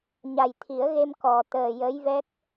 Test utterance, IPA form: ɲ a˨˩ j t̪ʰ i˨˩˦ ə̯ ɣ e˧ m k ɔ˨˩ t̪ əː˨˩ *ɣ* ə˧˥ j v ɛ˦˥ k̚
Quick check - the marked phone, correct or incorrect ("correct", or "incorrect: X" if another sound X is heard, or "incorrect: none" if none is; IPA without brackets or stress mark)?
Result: incorrect: j